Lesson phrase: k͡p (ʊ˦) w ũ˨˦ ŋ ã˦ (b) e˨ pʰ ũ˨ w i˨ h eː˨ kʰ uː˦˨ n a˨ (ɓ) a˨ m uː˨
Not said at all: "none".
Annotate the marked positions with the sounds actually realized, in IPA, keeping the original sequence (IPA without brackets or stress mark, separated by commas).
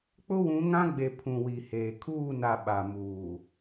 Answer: ʊ˦, ɡ͡b, ɓ